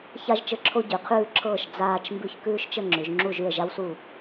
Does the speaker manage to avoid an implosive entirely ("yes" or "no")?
yes